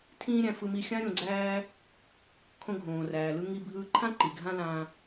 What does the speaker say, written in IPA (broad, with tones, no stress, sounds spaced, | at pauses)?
tʰ ĩː˥ ɾʲ æ̃˧ f ɯ˧ m i˧ xʲ ã˥ ɾʲ õ˧ ɡ͡ǀ æː˥ | kʰ õ˧ ɡʱ õː˩ r æː˩ l ɯ˧ ŋ i˧ bʱ ɯː˧ ǃʰ ã˥ ǃ i˩ ɡʱ ã˥ l ãː˧